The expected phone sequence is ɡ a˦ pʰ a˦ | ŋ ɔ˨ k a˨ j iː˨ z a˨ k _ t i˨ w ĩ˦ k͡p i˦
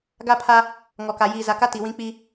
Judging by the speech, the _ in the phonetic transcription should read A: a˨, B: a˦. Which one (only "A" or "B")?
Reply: B